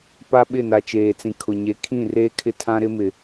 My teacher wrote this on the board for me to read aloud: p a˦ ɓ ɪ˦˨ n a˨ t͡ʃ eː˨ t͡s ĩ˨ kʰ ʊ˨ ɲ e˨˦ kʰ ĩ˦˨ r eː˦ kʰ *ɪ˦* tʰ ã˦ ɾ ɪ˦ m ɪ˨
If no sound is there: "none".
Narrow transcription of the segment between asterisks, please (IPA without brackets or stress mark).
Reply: ɪ˦